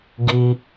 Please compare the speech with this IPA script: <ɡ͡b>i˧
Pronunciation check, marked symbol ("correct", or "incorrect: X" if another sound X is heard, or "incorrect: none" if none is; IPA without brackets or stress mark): incorrect: ɡ